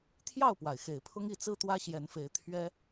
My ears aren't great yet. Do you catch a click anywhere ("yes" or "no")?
no